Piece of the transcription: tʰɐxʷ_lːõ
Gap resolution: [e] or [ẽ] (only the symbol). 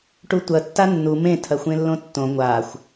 ẽ